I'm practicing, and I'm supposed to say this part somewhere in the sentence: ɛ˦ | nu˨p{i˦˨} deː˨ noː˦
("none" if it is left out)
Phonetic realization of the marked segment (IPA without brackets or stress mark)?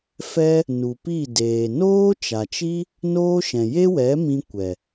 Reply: i˦˨